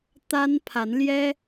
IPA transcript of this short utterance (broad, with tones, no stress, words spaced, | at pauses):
t̪a˥npʰa˧˥nljɛ˥